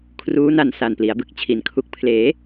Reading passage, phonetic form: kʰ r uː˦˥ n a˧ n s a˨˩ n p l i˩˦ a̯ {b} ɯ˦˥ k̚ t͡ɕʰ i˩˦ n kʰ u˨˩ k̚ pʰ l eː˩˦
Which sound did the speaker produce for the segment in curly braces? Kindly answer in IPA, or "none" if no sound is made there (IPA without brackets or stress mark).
b